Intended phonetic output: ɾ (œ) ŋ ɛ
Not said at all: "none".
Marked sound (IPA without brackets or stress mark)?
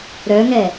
œ